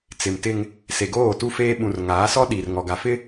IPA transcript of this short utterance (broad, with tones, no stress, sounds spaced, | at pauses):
t͡s ɪ˨ m t ɪ˦ ŋ | s e˨ ɡ oː˦˨ t u˦ f eː˦ ɓ ũ˨ r ŋ aː˨˦ s ɔ˦ ɗ i˨ r ŋ ɔ˨ ɡ a˨ f ɪ˦